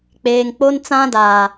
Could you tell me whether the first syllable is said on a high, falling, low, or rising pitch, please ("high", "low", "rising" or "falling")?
low